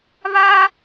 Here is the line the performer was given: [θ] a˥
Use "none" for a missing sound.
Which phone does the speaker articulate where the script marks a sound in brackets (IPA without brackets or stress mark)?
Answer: β